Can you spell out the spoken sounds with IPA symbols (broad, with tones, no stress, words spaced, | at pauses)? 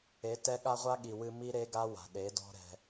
e˨˦tɛ˦ɠa˦ ʁʷa˦ɠi˨wɨ˧ mi˦ɾe˦ɡa˦wa̤˨ ɗe˨˦dɔ̤˦ ɾɛ̤˧